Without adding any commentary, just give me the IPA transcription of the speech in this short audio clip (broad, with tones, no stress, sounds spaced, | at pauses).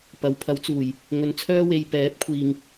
p ɐ˨˥ w pʰ ɐ˨˥ w t͡s uː˨˩ j | ŋ ɵ˨˧ n t͡sʰ œː˥ w e˨˧ j p ɛː˨˥ p̚ kʷʰ iː˨ ŋ